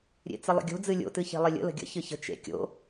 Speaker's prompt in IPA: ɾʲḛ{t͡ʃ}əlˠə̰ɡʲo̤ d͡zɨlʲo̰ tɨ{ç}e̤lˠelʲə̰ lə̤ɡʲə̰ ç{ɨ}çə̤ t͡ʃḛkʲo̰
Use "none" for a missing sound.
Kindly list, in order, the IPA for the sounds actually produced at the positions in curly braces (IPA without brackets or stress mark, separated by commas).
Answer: t͡s, ç, ɨ